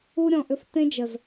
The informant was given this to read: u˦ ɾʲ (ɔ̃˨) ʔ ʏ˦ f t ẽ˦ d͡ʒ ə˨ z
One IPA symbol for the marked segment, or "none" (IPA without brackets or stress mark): ɔ̃˨